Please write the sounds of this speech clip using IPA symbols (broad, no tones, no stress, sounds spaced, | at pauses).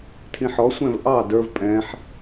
tʰ ĩ ħ ɔ sʷ ɛ̃ v ʔ ɑ d ə˞ v pʼ ɛ̃ ħ